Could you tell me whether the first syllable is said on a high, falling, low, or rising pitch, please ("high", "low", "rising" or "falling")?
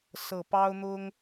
low